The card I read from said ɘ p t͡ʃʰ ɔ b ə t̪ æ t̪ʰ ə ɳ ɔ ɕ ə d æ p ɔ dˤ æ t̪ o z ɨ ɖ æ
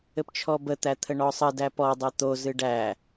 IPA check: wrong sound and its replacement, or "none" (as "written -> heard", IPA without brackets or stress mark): ɕ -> sˤ